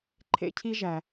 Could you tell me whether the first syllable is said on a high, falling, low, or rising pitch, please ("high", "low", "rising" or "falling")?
high